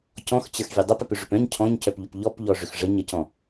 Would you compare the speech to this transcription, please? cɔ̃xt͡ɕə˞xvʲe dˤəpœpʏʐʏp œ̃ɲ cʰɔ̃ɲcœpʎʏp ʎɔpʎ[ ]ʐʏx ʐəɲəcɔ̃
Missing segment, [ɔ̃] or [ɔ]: ɔ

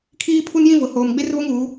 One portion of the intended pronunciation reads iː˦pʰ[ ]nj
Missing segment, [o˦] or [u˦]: u˦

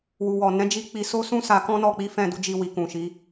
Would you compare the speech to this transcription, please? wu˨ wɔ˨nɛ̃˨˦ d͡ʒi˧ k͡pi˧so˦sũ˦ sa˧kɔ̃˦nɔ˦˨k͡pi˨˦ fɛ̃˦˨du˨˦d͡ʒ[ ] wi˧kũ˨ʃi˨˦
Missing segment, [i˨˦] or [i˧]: i˧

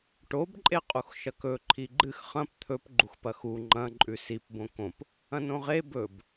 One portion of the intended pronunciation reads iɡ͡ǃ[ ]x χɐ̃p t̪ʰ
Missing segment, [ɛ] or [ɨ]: ɨ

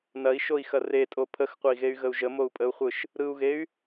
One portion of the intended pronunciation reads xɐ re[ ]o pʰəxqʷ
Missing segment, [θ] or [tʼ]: tʼ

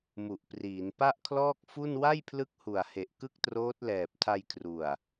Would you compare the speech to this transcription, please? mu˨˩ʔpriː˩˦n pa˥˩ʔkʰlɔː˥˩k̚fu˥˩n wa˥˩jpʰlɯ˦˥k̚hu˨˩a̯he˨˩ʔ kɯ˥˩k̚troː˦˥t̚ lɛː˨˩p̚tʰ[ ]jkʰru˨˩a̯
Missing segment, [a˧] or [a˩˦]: a˧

